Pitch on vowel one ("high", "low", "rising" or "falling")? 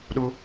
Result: high